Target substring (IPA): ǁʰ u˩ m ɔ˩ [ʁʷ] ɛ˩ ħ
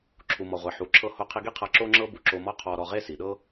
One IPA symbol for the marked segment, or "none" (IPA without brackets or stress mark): ʁʷ